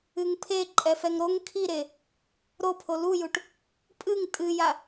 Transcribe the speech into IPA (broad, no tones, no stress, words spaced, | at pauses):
ɨŋpʰe ǃʼɛfɛŋɾoŋ kʰiɾe | ɾopʰo lujuʈ | pʼɨŋ tʼɨja